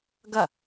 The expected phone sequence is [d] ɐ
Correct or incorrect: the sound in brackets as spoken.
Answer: incorrect: ɡ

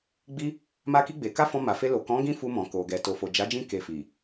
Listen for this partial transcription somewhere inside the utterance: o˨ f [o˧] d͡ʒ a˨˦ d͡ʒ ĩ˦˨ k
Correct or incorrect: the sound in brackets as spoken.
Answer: incorrect: o˨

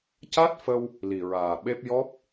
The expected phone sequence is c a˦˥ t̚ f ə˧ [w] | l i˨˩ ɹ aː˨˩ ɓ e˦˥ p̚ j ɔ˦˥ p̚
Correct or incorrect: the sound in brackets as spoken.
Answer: correct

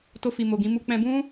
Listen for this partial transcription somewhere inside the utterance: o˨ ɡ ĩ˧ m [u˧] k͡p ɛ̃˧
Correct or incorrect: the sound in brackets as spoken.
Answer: incorrect: u˦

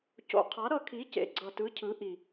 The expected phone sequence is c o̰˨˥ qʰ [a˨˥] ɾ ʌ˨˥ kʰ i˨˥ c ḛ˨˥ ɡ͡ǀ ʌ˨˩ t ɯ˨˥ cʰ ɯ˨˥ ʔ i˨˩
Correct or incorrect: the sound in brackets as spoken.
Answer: correct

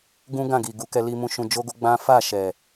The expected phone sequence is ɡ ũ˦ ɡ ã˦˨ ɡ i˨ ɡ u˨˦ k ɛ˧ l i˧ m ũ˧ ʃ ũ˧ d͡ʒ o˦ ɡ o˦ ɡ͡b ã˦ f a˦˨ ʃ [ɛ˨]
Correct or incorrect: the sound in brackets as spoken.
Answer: correct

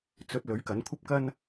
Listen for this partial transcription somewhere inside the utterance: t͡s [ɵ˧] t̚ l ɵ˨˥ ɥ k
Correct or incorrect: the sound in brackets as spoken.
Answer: correct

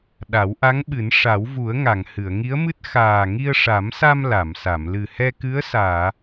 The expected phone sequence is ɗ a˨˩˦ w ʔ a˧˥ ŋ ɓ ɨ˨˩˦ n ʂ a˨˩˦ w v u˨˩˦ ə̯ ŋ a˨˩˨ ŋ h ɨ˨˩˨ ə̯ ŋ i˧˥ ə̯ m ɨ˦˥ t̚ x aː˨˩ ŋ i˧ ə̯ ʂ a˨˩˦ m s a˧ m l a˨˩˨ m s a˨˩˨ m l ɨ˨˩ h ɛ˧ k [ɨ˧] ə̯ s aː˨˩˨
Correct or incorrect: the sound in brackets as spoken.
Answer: incorrect: ɨ˧˥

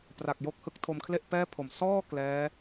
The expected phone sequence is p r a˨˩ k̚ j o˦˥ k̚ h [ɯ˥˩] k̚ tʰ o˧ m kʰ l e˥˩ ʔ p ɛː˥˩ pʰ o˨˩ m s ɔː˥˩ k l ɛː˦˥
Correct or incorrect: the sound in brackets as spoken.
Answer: incorrect: ɯ˦˥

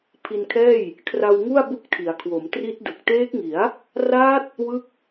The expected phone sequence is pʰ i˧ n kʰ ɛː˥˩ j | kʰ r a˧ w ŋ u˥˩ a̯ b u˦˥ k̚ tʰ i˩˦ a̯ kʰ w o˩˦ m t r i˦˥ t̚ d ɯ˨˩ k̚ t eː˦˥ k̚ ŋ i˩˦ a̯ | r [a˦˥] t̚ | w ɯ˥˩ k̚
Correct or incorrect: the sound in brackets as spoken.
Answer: incorrect: aː˦˥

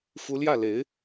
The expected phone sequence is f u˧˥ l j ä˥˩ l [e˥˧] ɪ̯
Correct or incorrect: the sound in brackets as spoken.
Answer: incorrect: e˧˥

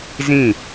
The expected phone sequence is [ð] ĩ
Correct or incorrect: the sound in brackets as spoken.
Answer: incorrect: z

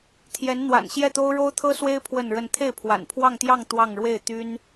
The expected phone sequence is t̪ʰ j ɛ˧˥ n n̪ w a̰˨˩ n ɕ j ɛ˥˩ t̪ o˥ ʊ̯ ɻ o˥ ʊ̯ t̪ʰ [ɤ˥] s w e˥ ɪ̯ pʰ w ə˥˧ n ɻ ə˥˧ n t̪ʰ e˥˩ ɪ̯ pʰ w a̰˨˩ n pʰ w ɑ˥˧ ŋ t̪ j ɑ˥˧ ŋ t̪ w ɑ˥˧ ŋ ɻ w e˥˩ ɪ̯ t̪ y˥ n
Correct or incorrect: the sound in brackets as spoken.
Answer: correct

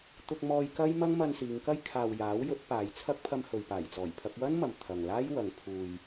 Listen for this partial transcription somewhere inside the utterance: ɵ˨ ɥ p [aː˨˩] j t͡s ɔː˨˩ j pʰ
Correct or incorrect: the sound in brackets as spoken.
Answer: correct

